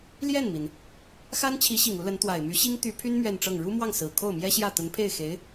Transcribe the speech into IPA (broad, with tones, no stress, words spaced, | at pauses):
ljɛ˥˩nmi˩n | xa˥nt͡ɕʰi˧˥ɕi˨˩ŋ u˧˥lə˧˥n t̪wa˨˩ɪ̯my˧˥ɕi˥ŋ t̪y˧˥pʰy˥n mɥɛ˥˧nʈ͡ʂɤ˥˩ŋ ɻu˥mwɑ˥˩ŋ sɹ̩˨˩ kʰo˥˩ʊ̯mjɛ˥ɕjä˥˩ t̪ə˧˥npʰe˥˩ɪ̯xe˧˥ɪ̯